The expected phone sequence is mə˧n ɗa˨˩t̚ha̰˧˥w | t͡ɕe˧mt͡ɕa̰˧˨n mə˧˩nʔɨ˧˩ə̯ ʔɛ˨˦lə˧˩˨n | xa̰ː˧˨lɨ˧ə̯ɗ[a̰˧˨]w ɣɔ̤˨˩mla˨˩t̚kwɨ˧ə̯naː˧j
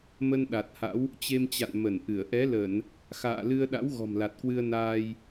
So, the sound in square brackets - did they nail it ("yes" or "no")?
no